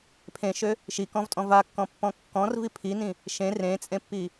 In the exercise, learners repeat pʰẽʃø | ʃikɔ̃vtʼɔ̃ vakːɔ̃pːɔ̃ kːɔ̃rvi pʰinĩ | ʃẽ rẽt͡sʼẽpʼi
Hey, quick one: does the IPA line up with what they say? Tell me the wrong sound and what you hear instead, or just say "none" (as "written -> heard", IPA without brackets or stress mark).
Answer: pʼ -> pː